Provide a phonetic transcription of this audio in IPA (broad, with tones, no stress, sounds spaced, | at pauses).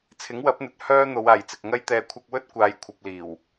t͡sʰ ɪ˨˥ ŋ w ɐ˨˥ p̚ n̪ ɵ˨ t̚ h œː˥ n̪ o˨˧ w aː˨ j t͡s ɪ˨ k̚ ŋ ɐ˥ j t̪ ɛː˨ kʷʰ ɐ˧ k̚ w ɵ˥ t̚ kʷ aː˨˧ j kʷʰ ɐ˧ p̚ l iː˨˩ w